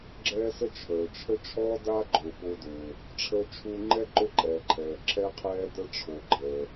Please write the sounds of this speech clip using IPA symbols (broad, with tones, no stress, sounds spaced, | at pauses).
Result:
ɡ͡ǁ ɛː˧ s ə˧ t͡ʃʰ əː˩ t͡ʃʰ ə˥ t͡ʃʰ ɔː˥ d a˥ ɡ͡ǃ ʊː˩ p ʊː˧ d ʊː˩ | ʈ͡ʂʰ əː˧ t͡ʃʰ u˧ ŋ͡ǃ ɛ˥ ǃ ʊ˥ ǃʼ ɛː˩ ǃʰ ɛː˩ ǁʰ ɛ˥ qʰ ɛː˥ d ə˥ ʈ͡ʂʰ o˩ ɡ͡ǃ əː˩